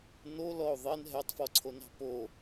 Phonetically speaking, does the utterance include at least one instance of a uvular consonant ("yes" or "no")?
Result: no